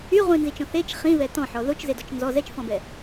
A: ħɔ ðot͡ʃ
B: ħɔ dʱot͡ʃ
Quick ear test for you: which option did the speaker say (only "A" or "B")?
A